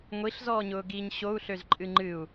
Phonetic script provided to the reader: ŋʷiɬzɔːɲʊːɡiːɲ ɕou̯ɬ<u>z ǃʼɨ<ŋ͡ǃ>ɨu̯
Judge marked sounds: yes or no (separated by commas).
no, yes